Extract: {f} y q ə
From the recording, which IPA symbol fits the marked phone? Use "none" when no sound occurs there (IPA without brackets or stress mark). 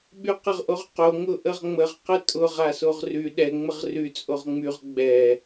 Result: ɓ